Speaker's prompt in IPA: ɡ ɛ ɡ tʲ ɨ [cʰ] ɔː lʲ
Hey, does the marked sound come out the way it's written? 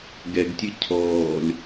yes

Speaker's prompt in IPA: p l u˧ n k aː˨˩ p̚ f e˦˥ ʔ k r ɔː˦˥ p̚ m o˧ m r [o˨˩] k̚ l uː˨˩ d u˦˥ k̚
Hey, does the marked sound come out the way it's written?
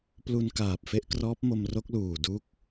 no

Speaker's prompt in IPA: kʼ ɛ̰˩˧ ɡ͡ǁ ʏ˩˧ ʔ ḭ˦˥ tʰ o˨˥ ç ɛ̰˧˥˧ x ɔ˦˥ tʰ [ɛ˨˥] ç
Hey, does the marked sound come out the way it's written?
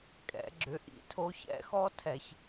no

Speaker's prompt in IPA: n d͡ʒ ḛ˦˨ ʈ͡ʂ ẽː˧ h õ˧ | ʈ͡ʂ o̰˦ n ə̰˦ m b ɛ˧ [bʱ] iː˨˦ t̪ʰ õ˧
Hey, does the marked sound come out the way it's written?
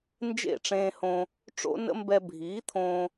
yes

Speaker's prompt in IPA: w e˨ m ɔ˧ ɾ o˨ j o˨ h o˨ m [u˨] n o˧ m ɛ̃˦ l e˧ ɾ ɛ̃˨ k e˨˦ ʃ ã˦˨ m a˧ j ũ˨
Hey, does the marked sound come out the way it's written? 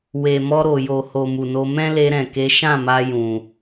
yes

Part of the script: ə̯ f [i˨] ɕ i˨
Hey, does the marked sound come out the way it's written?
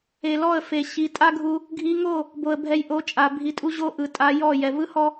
no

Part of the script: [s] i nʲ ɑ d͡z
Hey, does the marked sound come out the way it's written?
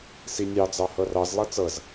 yes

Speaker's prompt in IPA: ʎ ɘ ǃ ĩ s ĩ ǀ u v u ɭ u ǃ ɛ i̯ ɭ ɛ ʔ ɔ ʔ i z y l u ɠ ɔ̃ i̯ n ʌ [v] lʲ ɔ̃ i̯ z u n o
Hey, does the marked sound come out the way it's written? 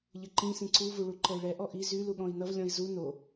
yes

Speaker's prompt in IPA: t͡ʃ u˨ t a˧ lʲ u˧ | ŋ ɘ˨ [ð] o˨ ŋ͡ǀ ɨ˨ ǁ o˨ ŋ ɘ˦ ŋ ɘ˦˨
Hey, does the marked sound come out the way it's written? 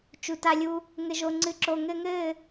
no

